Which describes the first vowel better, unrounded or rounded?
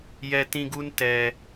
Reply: unrounded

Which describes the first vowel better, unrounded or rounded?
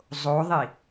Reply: rounded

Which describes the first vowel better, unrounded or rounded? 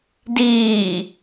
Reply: unrounded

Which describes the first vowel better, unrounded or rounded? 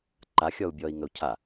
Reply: unrounded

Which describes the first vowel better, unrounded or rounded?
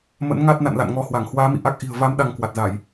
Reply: unrounded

